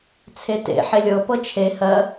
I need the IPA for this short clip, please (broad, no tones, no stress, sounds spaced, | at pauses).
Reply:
t͡sʰ e t ḛ ħ e lʲ ɤ p ɤ t͡ʃʰ e h ɜ